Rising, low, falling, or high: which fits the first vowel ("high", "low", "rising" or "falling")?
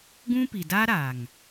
high